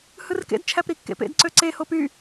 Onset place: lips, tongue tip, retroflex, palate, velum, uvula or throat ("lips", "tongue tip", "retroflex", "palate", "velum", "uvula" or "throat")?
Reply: throat